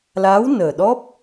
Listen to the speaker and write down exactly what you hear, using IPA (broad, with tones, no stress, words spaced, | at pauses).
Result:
laː˧˥wnəː˨˩ɗɔ˦˥p̚